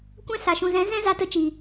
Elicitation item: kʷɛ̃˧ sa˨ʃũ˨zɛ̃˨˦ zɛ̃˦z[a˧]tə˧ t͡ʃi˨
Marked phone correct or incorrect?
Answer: correct